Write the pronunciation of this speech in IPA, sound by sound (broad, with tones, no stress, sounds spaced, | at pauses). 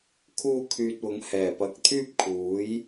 kʰ uː˧ kʰ yː˨ t̚ w ʊ˨˥ ŋ h ɛː˨˩ p ɐ˨ k̚ t̪ʰ yː˥ p̚ kʰ uː˨˥ j